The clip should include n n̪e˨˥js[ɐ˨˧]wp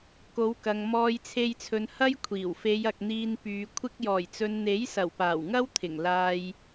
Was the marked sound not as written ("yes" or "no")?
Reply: yes